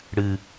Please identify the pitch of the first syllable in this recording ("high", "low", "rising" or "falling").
low